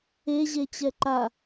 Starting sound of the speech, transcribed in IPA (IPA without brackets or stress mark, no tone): e